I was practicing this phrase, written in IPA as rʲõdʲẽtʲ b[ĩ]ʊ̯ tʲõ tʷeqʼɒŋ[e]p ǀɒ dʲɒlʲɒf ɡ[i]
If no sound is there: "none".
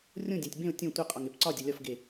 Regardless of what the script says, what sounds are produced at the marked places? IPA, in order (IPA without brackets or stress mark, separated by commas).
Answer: ẽ, e, e